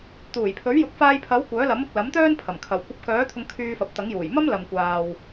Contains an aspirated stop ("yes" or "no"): yes